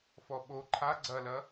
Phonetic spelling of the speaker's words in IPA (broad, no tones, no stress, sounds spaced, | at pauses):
f ɔ ɓ o ǃʰ a ɡ͡ǀ ɐ l ɐ